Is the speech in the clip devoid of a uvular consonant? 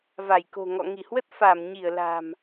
yes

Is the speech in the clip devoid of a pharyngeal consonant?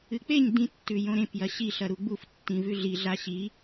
yes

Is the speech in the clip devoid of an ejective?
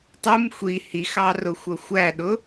yes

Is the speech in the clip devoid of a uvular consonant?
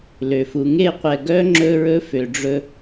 no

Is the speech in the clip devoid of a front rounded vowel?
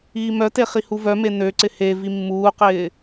no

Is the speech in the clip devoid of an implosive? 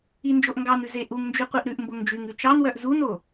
yes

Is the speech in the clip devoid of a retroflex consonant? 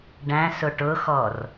no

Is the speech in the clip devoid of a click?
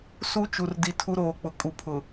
yes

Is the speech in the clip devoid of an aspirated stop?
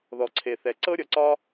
no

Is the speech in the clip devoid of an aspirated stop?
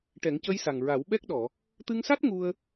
yes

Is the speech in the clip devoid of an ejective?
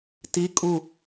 no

